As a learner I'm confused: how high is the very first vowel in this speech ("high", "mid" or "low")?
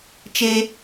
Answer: mid